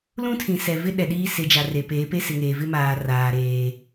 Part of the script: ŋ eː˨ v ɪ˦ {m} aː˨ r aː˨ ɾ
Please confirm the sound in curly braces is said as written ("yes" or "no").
yes